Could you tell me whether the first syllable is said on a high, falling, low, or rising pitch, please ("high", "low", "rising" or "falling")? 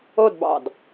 falling